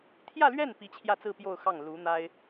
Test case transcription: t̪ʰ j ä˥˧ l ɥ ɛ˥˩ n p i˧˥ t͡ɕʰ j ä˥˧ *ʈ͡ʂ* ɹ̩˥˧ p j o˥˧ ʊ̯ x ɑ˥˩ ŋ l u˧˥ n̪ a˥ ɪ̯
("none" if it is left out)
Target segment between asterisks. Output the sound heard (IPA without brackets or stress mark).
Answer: t͡s